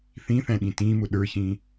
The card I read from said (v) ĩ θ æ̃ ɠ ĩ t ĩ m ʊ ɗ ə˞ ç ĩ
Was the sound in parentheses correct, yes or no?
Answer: no